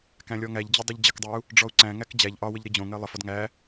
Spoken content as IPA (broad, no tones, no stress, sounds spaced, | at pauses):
k æ̃ lʲ ɔ ŋ æ ʎ d͡ʑ ɪ dˤ i ʎ d͡ʑ ə k dˤ ɜ u̯ | ɖ͡ʐ ɔ u̯ ǀ æ̃ ŋ æ k d͡ʑ æ ʎ ʔ ɒ w ə ʎ ɾ i d͡ʑ õ ŋ ɜ lˠ ə f ɔ d ŋ æ